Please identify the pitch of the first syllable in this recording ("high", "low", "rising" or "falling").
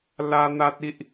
high